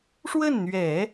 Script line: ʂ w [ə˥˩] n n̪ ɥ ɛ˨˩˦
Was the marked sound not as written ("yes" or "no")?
no